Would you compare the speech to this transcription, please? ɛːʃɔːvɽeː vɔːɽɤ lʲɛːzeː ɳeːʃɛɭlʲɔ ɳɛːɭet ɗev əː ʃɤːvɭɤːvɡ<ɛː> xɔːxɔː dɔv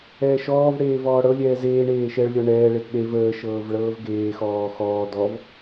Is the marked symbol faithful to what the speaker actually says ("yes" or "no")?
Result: no